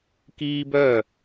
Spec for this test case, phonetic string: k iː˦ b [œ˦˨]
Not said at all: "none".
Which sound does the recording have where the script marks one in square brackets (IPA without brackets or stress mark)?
œ˦˨